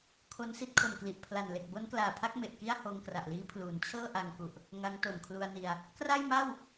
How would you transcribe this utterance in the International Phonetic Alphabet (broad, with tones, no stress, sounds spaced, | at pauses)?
kʰ o˧ n s i˥˩ t̚ kʰ o˨˩ m k l i˨˩ ʔ pʰ l a˨˩ n l e˨˩ k̚ b o˦˥ n k l aː˨˩ pʰ a˥˩ k̚ m e˨˩ ʔ k i˥˩ a̯ h oː˧ ŋ k r a˨˩ ʔ l iː˦˥ pʰ l uː˩˦ n t͡ɕʰ ɤː˥˩ ʔ a˧ ŋ k u˨˩ ʔ | ŋ a˦˥ ŋ t o˨˩ n kʰ l u˧ a̯ n i˧ a̯ | k r a˥˩ j m a˥˩ w